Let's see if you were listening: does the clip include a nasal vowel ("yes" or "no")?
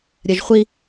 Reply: no